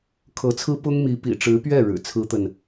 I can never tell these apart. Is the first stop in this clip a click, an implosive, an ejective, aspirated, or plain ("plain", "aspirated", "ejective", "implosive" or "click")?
aspirated